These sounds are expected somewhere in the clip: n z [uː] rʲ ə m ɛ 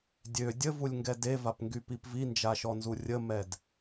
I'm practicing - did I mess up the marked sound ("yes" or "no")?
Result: yes